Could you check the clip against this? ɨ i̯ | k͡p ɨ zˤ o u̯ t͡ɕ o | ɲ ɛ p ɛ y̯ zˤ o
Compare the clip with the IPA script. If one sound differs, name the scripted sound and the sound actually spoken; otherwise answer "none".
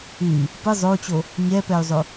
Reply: k͡p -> p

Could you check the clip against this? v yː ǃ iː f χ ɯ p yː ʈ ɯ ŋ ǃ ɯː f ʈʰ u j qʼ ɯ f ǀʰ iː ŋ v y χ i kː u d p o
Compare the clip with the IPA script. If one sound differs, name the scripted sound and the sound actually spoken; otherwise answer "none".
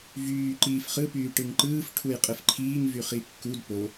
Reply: ǀʰ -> ǃʰ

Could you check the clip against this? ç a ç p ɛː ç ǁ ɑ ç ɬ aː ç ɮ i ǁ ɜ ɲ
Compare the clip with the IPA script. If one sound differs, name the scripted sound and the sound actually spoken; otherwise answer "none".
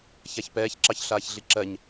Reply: none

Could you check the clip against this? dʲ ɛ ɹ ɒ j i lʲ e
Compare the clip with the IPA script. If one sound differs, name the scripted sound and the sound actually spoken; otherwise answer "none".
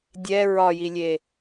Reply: none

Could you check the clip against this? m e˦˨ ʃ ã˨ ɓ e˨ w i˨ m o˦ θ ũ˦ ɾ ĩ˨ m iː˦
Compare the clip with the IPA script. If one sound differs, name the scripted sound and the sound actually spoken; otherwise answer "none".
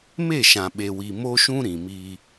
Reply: θ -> ʃ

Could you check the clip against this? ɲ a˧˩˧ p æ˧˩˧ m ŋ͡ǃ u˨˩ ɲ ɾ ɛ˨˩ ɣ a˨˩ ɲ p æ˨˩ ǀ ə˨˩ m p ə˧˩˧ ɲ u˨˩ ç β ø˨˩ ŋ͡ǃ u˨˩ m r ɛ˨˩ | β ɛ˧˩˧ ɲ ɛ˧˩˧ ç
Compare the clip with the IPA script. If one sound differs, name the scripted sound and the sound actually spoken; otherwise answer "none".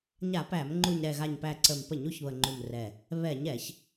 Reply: ø˨˩ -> ə˨˩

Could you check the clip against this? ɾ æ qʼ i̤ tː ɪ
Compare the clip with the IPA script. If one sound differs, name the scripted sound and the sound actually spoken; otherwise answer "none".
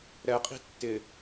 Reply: æ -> ɛ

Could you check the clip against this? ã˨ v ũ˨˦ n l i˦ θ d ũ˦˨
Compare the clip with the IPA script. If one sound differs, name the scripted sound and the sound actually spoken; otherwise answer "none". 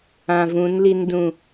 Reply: θ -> n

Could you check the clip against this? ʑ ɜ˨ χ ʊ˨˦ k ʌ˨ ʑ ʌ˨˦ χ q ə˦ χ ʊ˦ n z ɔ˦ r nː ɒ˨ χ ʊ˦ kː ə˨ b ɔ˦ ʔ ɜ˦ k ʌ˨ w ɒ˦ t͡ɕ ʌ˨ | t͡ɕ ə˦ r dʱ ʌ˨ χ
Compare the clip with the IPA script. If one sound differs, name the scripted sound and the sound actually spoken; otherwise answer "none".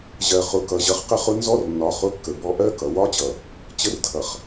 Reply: none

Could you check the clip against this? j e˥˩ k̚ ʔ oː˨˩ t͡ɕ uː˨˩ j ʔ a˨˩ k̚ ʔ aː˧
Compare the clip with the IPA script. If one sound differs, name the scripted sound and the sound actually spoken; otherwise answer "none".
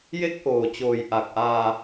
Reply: uː˨˩ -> oː˨˩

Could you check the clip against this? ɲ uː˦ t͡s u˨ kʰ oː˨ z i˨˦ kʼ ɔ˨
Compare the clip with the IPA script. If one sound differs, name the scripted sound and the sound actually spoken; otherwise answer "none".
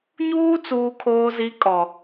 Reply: u˨ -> uː˨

